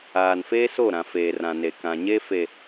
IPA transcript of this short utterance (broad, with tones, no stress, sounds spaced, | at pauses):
aː˨ n f eː˦ s o˦˨ ɾ ã˨ f eː˨ r ã˨ n e˨ k ã˨ ɲ e˦ f e˨